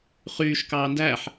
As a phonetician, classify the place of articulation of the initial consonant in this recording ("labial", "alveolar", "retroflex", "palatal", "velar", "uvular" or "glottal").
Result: uvular